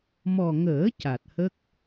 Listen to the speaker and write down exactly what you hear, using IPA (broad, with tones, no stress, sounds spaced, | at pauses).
m ɔ˨˩ ŋ əː˨˩˦ c a˨˩ t̚ h ə˦˥ k̚